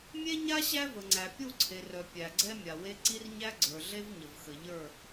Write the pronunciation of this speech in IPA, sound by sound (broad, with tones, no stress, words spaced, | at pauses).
mʲe˦ɲa˦ ɕæ˦və˨ŋ͡ǀæ˨ pʲu˦˨ǀʰe˨rœ˨ pʲæ˨ ɡ͡ǀɛ˦mʲa˨we˦ ǀi˦rɲæ˦ ɡ͡ǀə˞˨ɮe˦v ɲə˨vxə˨ ʎə˞˦˨